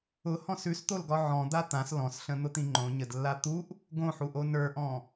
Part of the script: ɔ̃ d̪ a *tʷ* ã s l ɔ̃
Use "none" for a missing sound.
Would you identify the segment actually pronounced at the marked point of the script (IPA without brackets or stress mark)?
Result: t̪